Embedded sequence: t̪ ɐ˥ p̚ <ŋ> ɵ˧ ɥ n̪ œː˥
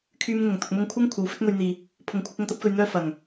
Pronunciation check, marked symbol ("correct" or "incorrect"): incorrect